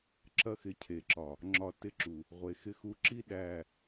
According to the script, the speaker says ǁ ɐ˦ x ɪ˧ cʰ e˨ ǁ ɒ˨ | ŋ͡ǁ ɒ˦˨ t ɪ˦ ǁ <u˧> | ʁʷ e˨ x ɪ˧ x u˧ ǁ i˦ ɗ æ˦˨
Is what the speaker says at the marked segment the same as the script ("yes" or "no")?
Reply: no